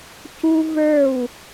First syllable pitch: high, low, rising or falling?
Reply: high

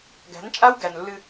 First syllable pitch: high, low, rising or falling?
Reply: rising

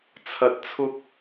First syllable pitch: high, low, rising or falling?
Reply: low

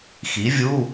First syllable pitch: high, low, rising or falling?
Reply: rising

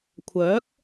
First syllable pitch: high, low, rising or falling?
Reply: rising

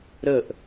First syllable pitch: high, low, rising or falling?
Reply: falling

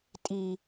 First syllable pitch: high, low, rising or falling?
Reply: high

